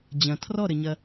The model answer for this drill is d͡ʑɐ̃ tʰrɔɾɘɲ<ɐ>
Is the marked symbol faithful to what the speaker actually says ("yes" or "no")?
yes